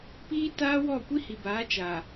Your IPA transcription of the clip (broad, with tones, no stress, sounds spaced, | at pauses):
p iː˦ t aː˦ w ɔ˦˨ kʷ i˦ h i˨ b aː˨˦ t͡ʃ a˨